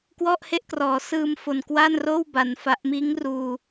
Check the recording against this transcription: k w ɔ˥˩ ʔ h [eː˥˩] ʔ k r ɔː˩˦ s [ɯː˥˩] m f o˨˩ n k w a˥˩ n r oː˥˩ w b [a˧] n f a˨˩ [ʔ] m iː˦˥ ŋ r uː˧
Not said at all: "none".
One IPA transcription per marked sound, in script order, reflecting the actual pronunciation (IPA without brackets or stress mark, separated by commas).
e˥˩, ɯː˧, a˩˦, ʔ